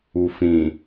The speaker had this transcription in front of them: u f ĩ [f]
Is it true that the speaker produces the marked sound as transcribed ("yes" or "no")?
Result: no